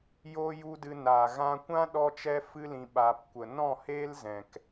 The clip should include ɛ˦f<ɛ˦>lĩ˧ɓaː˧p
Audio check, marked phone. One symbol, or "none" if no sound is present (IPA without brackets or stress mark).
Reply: ɨ˦